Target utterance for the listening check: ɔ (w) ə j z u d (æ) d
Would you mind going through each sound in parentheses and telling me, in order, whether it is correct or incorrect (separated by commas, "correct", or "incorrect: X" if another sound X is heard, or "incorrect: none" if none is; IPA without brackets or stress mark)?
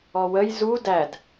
correct, correct